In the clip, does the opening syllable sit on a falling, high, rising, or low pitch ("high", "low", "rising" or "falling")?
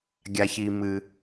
low